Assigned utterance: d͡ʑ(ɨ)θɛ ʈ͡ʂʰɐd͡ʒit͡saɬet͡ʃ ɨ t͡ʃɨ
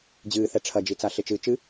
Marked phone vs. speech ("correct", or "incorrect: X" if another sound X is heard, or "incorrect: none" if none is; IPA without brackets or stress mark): incorrect: ɨː